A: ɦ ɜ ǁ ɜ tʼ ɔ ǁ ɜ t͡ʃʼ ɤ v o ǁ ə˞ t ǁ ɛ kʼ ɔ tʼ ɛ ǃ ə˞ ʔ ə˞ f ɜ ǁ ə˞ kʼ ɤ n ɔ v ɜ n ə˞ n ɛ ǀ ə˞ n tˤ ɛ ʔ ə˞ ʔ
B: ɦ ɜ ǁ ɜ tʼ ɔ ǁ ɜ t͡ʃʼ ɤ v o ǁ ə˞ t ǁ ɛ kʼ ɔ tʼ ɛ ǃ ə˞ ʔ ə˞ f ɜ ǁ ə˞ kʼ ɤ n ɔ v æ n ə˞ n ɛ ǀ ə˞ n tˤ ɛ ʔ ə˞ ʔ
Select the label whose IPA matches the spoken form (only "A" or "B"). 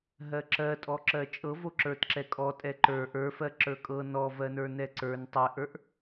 A